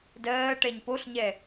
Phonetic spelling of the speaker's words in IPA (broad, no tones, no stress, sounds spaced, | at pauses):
d ɜː ʈ ɛ ɲ p o ɬ ɲ ɛ